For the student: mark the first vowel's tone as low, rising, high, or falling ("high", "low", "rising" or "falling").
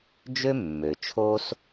high